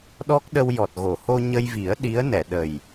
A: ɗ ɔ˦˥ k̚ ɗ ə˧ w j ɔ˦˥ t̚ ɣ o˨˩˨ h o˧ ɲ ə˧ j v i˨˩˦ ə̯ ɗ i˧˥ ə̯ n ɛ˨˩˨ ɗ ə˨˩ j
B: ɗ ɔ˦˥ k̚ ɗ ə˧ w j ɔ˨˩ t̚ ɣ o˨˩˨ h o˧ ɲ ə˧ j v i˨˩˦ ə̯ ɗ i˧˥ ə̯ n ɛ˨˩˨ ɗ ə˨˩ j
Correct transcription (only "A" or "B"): B